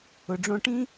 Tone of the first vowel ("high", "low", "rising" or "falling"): low